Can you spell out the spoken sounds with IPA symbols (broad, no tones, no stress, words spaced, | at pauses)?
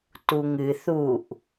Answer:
tuŋɨ θuʔ